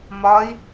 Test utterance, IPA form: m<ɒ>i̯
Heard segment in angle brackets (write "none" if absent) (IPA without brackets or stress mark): ɒ